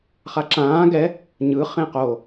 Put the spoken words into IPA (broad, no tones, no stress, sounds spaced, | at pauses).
χ a ǁ ãː ɡ ɛ | ɲ ɯ χ ẽ q o